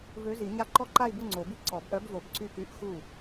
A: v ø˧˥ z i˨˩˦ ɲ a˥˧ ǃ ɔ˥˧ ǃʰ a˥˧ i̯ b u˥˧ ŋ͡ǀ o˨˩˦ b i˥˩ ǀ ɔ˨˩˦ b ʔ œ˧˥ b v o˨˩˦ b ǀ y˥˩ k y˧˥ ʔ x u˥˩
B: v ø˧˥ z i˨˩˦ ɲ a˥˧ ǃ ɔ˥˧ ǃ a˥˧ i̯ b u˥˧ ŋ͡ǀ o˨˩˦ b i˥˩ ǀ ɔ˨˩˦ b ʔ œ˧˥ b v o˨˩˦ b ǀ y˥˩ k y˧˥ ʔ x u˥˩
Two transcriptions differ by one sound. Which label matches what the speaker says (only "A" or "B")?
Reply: B